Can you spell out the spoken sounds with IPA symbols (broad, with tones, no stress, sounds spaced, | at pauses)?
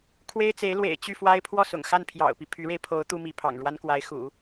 kʰ w e˥ ɪ̯ t͡s e˧˥ ɪ̯ l w ḛ˨˩ ɪ̯ t͡ɕ y˥˩ f w a˥ ɪ̯ pʰ w ɔ˥˩ s ʊ̰˨˩ ŋ x a˥˩ n pʰ j ɑ̰˨˩ ʊ̯ p i˦ pʰ y˧˥ ɻ e˧ ɪ̯ pʰ o˧˥ ʊ̯ t̪ u˥ m i˧˥ pʰ ɑ̰˨˩ ŋ ɻ w a˥ n k w a˧˥ ɪ̯ x ṵ˨˩˦